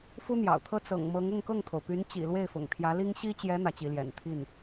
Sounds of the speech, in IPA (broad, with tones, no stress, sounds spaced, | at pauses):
f u˥ n̪ j ɑ̰˨˩ ʊ̯ t̪ʰ ɤ˥ t͡s ɤ̰˨˩ ŋ m ɤ˧˥ ŋ ʊ˥˧ ŋ k ɤ˥˩ ŋ t̪ʰ o˩ ʊ̯ p y˧˥ n t͡ɕ ḭ˨˩ l w e˥˩ ɪ̯ f ʊ̰˨˩ ŋ t̪ʰ j ä˧˥ l i˥ ŋ ɕ i˥ t͡ɕ j ɛ˧˥ n̪ ä˧˥ t͡ɕ i˧˥ l j ɛ̰˨˩ n t̪ʰ i˥˩ n